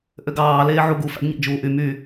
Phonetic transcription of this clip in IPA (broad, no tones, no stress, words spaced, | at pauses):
ʔøɡɑː leːʕuɡu fæ̰ɡɲæ̰d͡ʒuːʔy my